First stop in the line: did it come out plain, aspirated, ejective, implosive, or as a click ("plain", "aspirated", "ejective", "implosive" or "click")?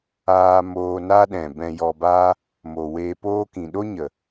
implosive